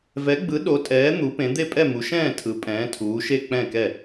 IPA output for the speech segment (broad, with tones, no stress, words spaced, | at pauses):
vɛ˨˥ɡ͡bɯ˨˥ ɗo˨˥tʼɛː˨˥ n̪u˨˥pẽ˨˥ d̪e˥˨pʼɛ˥˨mu˨˥ʃɛ̃ː˥˨ tʰɯ˨˥ pʼɛ̃ː˨˥tʰuː˨˥ʃe˥˨ k͡pɛ̃˥˨kɛ˥˨